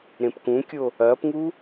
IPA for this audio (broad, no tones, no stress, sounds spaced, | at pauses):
ɾ ẽ p k ũ kʲ o | ɐː p ŋ u